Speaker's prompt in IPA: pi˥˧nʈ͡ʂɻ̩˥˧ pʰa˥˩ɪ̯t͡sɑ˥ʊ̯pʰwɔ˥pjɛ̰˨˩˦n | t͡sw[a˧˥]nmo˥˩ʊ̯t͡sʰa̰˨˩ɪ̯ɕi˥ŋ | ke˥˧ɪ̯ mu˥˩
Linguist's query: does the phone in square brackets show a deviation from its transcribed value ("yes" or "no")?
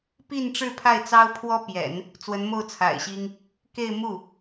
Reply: yes